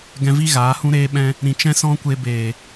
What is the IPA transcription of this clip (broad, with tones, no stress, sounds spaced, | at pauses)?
ɡ ɛ̃˧ v i˦ ɣ aː˨˦ h ũ˦ ɾ eː˧ ɓ ɛ̃˧ | ɾ ĩ˨ t͡ʃ ɛ̃˦ s ɔ̃˦ kʷ e˧ b eː˨